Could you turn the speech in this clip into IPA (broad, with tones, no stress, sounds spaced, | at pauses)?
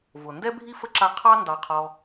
v ʊ˩ n d ɛ˥ bʱ i˥ f ə˥ ǁ a˦ qʰ ɑ˥ n d ɑ˨ qʰ ɔ˨